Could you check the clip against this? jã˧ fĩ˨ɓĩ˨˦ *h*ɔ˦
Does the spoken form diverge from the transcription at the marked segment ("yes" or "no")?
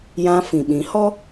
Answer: no